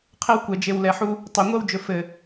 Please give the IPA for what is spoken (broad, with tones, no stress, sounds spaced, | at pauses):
qʰ ɘ˦ w kʷ ɛ˨ d͡ʒ e˨ w l ɛ˨ ħ u˦ | tˤ ɵ˨ ŋʷ ɛ˦ w d͡ʒ ɵ˨ f ɘ˨